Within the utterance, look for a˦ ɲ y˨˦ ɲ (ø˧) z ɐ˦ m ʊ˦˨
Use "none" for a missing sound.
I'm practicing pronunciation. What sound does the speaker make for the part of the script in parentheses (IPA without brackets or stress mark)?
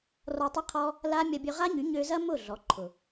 ø˧